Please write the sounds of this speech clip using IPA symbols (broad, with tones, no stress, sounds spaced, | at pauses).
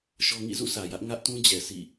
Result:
ʃ ɔ˦ ŋ ḭ˦˨ z ṵ˦˨ s ä˨ j ä˦ ʔ ŋ ä˦ ʔ t ũ˦ d͡ʑ ɛ˨ sʰ ḭ˦˨